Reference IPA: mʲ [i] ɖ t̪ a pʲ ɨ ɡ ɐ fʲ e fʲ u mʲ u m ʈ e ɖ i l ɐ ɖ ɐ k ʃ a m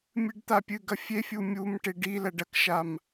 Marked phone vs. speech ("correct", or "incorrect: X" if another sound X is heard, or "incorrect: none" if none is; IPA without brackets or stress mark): incorrect: ɨ